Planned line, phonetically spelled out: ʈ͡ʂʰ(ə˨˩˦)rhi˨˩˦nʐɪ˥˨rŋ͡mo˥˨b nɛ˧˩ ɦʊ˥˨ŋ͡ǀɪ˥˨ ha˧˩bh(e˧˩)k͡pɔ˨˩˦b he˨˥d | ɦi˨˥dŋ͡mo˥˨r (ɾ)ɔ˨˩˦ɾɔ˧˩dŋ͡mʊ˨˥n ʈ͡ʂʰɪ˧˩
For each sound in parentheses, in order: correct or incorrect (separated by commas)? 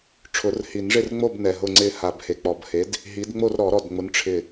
incorrect, correct, correct